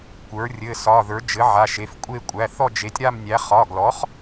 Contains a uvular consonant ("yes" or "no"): yes